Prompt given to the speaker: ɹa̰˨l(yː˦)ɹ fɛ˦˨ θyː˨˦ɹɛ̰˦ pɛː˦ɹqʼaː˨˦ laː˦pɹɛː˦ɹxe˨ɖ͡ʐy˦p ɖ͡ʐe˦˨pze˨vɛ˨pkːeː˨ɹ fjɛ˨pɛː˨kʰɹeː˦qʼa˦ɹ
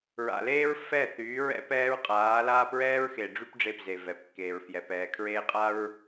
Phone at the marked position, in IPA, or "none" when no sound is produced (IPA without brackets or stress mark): eː˦